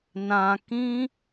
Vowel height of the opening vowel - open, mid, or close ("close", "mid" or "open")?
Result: open